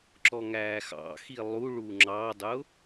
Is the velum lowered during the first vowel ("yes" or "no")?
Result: no